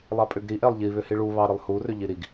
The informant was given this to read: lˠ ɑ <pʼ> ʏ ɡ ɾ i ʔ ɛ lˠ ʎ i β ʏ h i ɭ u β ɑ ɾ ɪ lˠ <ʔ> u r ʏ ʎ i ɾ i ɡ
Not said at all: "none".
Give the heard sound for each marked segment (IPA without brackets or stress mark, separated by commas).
pʼ, h